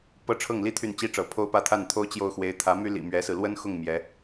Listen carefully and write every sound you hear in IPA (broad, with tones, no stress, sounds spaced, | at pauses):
p ɤ˥ ʈ͡ʂʰ ɤ˥˩ ŋ l i˥ t̪ʰ y˥˩ n t͡ɕ i˥ ʈ͡ʂ ɤ˧˥ pʰ o˥˧ ʊ̯ p ä˥˧ t̪ʰ a˥˩ n t̪ʰ o˥ ʊ̯ t͡ɕ j o˥˩ ʊ̯ x w e˧˥ ɪ̯ t̪ʰ ä˧˥ m y˥ l ḭ˨˩ m ɥ ɛ˧˥ s ɹ̩˧ l w ə˥ n x ʊ˥˩ ŋ m j ɛ˧˥